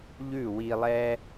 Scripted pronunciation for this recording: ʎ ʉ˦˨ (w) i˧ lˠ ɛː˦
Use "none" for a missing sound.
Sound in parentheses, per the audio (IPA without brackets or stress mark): w